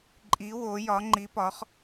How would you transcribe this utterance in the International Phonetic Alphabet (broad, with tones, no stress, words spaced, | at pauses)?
ǃʼi˧˥wo˧˥jɒ˧˥ ŋ͡ǃi˧˥pɒ˧˥χ